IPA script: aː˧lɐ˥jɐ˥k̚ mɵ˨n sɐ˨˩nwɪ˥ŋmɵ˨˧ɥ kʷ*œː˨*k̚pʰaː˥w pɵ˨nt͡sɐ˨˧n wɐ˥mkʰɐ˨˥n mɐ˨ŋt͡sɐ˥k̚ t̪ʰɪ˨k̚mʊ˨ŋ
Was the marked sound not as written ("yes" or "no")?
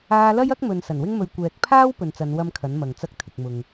yes